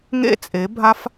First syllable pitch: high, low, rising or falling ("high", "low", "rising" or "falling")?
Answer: high